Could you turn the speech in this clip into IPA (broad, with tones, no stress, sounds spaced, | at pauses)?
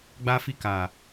ɡ͡b a˧ f i˧ k a˨